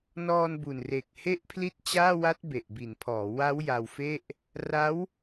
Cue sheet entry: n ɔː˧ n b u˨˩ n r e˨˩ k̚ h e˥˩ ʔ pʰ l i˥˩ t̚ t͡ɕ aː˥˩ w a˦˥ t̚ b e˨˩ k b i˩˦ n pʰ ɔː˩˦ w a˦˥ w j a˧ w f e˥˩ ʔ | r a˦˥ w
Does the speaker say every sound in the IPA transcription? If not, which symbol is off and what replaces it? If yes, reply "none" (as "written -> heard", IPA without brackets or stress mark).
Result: k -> ʔ